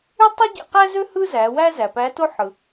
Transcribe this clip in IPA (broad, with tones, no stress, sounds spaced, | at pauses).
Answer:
y˥ tˤ i˥ ɟ ḛ˧ q æ˥ z ø˥ h ɯ˥ z æ˩˧ w æ˥ z æ˩ p æ˧˥ t o˥ ħ ɯ˩